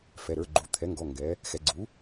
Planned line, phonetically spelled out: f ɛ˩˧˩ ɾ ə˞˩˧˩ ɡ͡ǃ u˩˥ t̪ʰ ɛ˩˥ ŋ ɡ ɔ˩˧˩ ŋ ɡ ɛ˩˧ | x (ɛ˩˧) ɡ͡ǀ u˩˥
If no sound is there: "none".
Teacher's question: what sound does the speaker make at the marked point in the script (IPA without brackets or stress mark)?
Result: ɛ˩˧